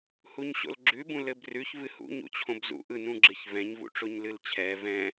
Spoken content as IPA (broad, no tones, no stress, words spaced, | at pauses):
huɲɕo̰lɡ͡ǁʉ bũlɘbrʉç vɨhṵ ɲṵt͡ɕʰõbzṵ ʔɯ nũɡ͡ǁɨç vɛ̃ɲ vṵʈ͡ʂoɲlɨlt͡ɕʰɛ vɛ̃